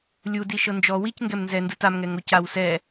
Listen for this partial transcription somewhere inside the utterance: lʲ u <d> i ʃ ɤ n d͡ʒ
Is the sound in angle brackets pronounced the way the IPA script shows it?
yes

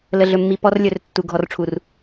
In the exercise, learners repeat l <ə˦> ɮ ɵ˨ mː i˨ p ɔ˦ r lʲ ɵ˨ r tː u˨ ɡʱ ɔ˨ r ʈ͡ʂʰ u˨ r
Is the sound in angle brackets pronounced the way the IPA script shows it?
no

